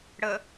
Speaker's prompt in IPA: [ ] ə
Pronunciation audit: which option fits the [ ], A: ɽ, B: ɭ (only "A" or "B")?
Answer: A